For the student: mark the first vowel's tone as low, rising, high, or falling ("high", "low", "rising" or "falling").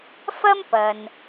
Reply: high